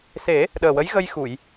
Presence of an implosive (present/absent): present